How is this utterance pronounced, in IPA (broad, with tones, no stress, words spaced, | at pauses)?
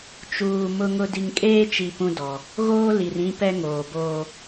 t͡ʃuː˨ mʊ˨ŋʊ˨ di˨ŋkʼeː˦t͡ʃi˨ pũ˦dɔ˨ | ɣoː˦ li˨rĩ˦pɛ˦ ŋoː˨boː˦